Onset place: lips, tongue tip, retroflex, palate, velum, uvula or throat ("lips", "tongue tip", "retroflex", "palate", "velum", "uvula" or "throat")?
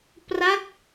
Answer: lips